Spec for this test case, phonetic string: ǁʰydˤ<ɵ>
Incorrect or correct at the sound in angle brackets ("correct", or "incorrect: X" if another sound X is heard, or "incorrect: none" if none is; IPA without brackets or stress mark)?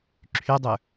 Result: correct